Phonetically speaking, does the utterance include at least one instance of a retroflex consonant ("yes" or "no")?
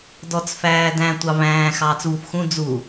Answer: no